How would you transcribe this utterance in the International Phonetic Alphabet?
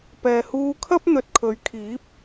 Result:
p ɛː˨ h uː˧ kʰ ɐ˥ p̚ n̪ ɵ˨ t̚ kʰ ɵ˨˧ ɥ kʰ iː˨˥ p̚

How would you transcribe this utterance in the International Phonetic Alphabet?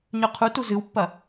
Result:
ɲ ɵ qʰ u t u z ɨ w pː ɐ

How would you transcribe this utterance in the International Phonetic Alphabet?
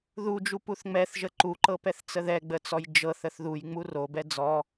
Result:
ð u d͡ʒ u p u θ ŋ͡m ɛ θ ʒ ə ǃ u ǃ ɤ p ɛ θ t͡s ə ð ɛ ɡ͡b ə t͡s ɔ j d͡ʒ ɤ θ ə θ ð u j ŋ͡m u r o b ɛ d͡z ɔ

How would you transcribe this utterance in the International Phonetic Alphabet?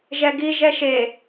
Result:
ʒ ɛ ɡ i ʒ ɛ ʃ e

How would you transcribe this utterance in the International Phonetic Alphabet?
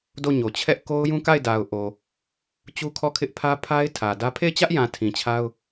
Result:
d o˦˨ ɲ o˨ t͡ɕʰ ɛ˦ ʔ k o˦ ʊ̯ j ũ˦ k a˦˨ ɪ̯ d a˨ ʊ̯ ʔ o˨ | t͡ɕ u˦ kʰ ɔ˦˨ kʰ ɪ˦ ʔ pʰ ä˦ pʰ a˦ ɪ̯ tʰ ä˨ d ä˦ pʰ e˦˨ ɪ̯ t͡ɕ ä˦ ʔ j ã˨ tʰ ĩ˨ t͡ɕʰ a˦ ʊ̯

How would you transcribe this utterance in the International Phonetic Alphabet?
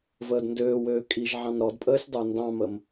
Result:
v əː d n d øː w øː kʼ i ʒ ʕ ɑ̃ n ɾ ɔ d pʼ əː sʲ dˤ ə˞ n d ɑ̃ m ə m

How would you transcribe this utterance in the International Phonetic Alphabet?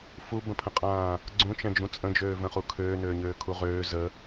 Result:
f u b ə̃ pʰ ə̃ qʼ ãː | ɡ͡ǀ ũ t͡ʃ ɛ̃ d͡ʒ ũ t͡sʼ ə̃ d͡ʒ øː v ə̃ χ u kʰ øː n øː ɲ øː kʰ u ʁ øː z ə

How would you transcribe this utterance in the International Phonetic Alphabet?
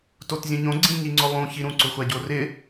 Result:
t o t zʲ ũ ɲ õ ɡ͡ǀ ĩ ɲ i ŋ͡ǀ ʊ lˠ ũ ç i ɾ ũ ǀ ʊ xʷ a ɟ o r ɪ

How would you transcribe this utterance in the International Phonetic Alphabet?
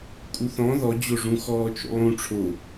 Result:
kʼ u θ ɔ̃ ð ɔ d͡ʑ o ʐ ũ x ɔː t͡ʃ o̰ lˠ ũ ʈ͡ʂʰ o

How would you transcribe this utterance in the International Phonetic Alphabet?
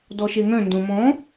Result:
d ɔ ʃ e ŋ œ̃ n d õ m ɔ̃

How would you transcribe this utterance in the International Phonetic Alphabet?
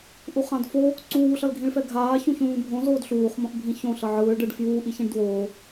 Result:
ʔ u χ ã d f o | ǀ uː ɬ ʌ l ɡʱ ĩ ɭ f ɛ ɡʱ aː ç ũ ç ũː bʱ õ z oː d ɬ uː χ m õ ʔ bʱ ĩ ç õ ɬ ʌ ʕ ɯː ɭ ɖ ɯ ɖ f j uː ʔ i ç ĩ ɖ d w oː

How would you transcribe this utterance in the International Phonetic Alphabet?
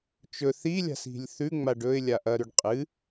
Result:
t͡ʃ ɵ θ i lʲ a̤ s i̤ lʲ θ ʉ ŋ͡m a ɖ ɵ ɪ̯ lʲ a ʔ ɐ ɾ ʉ ɖ qʼ ɨ

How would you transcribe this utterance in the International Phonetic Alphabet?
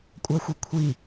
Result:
kʷʼ æ xʷ i kʷʰ i

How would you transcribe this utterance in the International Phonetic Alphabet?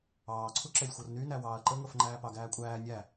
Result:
ɑː ǀʰ u ǁ ɛ lʲ xʷ ɤ r n y n æ w ɑː ɐ̯ ǃ ə ŋ ɤ f ŋ͡ǃ æː p ɑ ɡ æː kʷʼ æː nʲ æ

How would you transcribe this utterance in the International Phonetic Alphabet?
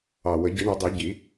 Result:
ɑ˨˩ w ə˨˩˦ ɟ i˨˩˦ ɳ ɔ˨˩˦ dˤ i˨˩˦ ɟ i˨˩˦

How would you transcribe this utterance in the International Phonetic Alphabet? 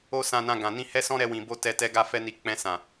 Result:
o˦ s ã˧ n ã˧ ɡ ã˨ n ĩ˧ h ɛ˦ s ɔ̃˦ ɾ ɛ˧ w ĩ˨ b o˧ t ɛ˧ t ɛ˧ ɡ a˧ f ɛ˧ n i˨ k͡p ɛ̃˧ s ã˨

